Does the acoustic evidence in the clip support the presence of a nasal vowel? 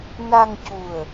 no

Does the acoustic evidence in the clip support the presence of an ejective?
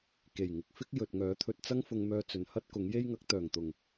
no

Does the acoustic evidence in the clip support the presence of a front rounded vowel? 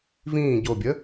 no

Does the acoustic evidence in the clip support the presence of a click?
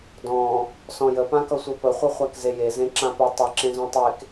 yes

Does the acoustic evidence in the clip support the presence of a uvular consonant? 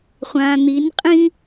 yes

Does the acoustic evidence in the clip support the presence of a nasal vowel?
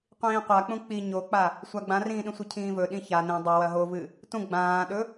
yes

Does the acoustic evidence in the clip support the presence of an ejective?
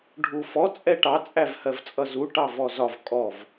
yes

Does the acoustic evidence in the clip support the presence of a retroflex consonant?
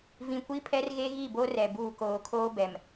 no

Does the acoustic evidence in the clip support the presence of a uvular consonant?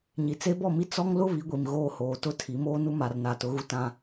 no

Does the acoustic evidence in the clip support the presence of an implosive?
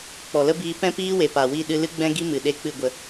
yes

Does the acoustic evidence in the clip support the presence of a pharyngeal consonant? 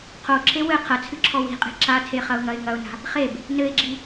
no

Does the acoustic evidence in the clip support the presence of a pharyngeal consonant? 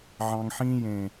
yes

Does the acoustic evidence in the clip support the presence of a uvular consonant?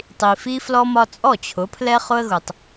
yes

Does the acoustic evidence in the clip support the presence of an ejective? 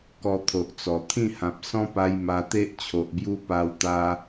no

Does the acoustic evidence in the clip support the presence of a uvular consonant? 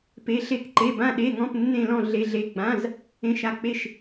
no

